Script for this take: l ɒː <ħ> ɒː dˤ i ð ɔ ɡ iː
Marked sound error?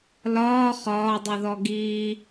yes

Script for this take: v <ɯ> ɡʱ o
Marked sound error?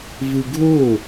no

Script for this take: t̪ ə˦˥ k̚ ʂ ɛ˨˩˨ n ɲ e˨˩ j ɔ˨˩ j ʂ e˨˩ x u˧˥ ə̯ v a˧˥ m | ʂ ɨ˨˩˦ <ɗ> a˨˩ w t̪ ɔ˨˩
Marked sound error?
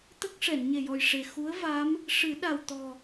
no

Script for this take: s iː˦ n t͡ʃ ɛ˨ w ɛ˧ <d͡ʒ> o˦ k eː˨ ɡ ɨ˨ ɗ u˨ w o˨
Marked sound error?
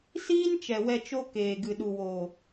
yes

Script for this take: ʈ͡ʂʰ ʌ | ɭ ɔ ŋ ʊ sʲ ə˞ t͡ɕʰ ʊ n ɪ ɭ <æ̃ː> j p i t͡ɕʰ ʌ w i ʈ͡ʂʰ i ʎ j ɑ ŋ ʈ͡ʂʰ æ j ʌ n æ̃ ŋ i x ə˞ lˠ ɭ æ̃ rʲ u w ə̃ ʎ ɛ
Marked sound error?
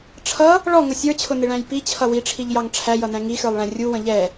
yes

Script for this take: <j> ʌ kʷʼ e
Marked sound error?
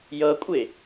no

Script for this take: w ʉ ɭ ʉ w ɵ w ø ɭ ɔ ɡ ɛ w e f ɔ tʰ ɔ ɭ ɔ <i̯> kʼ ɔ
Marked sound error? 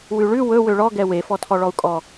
yes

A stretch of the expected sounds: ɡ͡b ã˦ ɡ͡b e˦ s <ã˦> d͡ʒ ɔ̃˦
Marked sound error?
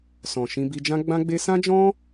no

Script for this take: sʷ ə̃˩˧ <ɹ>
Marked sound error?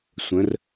yes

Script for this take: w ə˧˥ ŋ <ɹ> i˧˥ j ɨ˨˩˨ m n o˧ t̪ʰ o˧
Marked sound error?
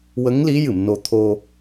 yes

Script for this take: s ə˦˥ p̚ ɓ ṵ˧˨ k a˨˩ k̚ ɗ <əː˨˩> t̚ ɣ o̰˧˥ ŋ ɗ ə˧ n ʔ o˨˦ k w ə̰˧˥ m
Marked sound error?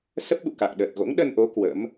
no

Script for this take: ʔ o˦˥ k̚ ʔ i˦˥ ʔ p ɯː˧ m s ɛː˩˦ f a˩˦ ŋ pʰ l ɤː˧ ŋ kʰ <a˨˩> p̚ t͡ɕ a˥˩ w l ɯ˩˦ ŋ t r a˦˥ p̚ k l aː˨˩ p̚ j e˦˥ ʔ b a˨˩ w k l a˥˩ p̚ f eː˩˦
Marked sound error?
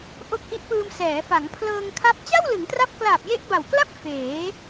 yes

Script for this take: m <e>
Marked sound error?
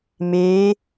no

